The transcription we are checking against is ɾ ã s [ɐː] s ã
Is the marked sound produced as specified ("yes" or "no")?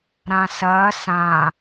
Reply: yes